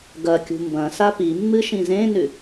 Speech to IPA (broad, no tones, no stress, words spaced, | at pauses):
ɡɐkʲṳ mbɐ̃sa pimːɨ ʃĩzẽnʉ